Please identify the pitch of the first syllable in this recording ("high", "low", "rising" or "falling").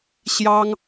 high